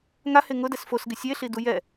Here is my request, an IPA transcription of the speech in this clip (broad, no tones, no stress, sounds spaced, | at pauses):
ŋ a h e ŋ ʊ d ɛ s f o s ɡ ɪ sʲ e ɬ i d u j ɛ